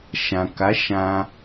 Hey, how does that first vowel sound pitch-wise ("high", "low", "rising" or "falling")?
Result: low